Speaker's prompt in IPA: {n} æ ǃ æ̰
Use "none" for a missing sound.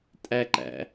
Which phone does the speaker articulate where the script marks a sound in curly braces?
tʼ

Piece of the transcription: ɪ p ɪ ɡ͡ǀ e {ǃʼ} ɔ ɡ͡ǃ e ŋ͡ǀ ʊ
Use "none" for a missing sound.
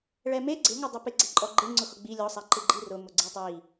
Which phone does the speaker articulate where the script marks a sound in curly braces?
ǃʼ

